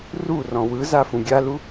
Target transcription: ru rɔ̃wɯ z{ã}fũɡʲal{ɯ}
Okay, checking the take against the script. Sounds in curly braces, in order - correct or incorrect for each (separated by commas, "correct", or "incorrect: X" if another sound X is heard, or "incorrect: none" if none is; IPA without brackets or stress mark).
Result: incorrect: a, incorrect: u